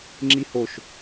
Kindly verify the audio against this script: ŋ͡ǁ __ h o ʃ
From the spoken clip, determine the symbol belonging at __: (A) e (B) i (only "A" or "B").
B